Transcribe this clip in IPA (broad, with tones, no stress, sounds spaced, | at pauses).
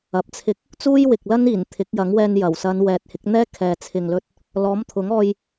ɐ˨˥ p̚ t͡sʰ ɪ˥ k̚ | t͡s uː˥ j w ɪ˨ k̚ l ɐ˥ n iː˨˩ n t̪ʰ ɪ˨˥ k̚ j ɐ˨˥ ŋ w ɛː˧ n j ɐ˨˩ w s ɐ˨˧ n w ɛː˨ t̚ h ɪ˨˥ k̚ n̪ ɛː˥ kʰ ɛː˨ t͡sʰ ɪ˨ ŋ l ɵ˧ t̚ | l ɔː˨˥ m t̪ʰ ʊ˨˥ ŋ ɔː˧ j